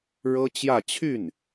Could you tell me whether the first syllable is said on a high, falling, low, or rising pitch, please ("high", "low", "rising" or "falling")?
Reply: high